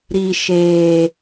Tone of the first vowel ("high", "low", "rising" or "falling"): low